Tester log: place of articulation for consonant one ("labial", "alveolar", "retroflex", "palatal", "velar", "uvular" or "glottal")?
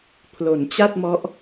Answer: labial